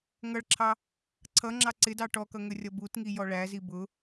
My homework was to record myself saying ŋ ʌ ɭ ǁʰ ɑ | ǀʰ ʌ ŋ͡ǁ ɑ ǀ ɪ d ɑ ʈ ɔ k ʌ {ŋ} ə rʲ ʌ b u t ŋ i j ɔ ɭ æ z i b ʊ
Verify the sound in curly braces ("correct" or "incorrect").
correct